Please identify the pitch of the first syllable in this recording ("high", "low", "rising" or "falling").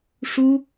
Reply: high